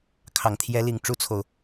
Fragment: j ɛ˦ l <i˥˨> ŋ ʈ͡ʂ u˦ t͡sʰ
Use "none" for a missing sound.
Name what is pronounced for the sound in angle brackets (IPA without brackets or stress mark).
i˥˨